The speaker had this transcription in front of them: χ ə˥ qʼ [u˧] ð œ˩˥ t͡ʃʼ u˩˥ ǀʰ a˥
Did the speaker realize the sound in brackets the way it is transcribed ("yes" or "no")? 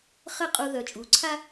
yes